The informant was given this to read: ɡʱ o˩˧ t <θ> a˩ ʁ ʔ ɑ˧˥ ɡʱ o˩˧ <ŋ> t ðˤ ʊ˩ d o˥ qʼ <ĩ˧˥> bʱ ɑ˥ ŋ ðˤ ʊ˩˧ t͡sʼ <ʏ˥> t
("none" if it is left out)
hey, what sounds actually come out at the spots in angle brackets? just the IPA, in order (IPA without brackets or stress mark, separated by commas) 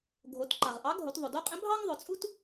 ǃ, none, ĩ˧˥, u˥